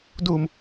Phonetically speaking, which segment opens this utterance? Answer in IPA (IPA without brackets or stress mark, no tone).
d